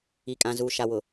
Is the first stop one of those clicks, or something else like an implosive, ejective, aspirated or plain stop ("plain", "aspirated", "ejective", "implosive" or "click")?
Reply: ejective